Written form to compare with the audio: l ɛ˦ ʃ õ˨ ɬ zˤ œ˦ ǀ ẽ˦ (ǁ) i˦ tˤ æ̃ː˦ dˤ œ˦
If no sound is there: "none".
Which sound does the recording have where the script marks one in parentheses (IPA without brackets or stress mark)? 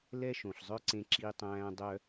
ǁ